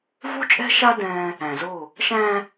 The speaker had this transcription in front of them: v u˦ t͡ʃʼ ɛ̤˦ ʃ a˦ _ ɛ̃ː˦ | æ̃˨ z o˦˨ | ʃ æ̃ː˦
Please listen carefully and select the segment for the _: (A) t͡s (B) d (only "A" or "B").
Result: B